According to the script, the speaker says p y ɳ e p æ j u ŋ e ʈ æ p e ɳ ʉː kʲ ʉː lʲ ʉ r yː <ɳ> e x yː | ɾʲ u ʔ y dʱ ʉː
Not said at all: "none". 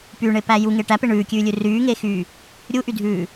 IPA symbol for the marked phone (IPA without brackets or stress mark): ŋ